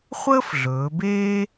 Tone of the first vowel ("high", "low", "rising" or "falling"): high